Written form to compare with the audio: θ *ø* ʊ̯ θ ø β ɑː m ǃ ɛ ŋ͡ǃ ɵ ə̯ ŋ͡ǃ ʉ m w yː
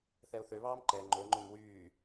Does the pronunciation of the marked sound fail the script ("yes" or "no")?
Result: yes